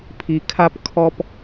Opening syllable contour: low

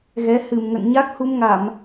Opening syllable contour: rising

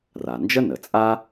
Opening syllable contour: low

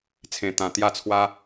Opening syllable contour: low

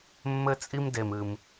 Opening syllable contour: high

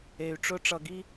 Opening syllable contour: low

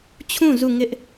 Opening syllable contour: falling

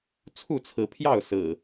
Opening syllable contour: falling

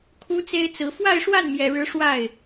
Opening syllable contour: high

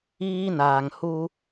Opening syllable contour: high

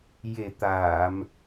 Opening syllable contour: low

